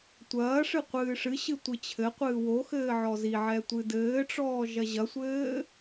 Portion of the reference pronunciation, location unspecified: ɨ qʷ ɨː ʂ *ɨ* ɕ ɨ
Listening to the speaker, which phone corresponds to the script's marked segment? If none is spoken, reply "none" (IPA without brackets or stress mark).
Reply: ɨ